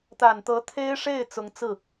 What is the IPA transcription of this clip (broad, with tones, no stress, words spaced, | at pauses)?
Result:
t̪a˨˩nt̪ɤ˧˥ t̪ʰe˥ɪ̯ʂe˥˩ɪ̯ t͡sʊ˧˥ŋt͡sɹ̩˥˩